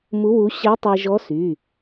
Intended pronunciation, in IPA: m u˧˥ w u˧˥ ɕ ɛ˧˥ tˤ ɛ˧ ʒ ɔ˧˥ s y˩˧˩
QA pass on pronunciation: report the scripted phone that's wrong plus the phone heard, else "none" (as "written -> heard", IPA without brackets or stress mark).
none